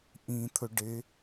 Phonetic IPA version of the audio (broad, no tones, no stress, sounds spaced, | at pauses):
ʔ ĩ t̪ʰ ɵ ɖ e